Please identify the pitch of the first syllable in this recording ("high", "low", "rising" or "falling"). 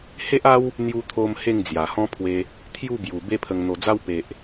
high